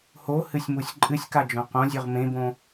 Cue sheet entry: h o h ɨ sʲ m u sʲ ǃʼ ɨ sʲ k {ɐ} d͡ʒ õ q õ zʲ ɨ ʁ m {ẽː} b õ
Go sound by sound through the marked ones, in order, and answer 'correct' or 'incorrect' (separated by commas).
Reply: incorrect, incorrect